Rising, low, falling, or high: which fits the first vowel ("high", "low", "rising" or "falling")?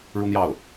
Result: high